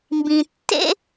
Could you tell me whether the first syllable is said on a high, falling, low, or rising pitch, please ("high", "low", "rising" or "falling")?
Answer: low